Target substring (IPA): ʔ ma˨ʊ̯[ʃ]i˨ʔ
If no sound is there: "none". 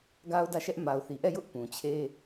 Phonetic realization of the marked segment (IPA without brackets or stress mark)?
θ